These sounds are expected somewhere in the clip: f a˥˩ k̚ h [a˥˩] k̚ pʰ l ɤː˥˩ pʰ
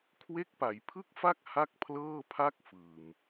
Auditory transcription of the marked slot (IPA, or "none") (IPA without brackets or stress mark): a˥˩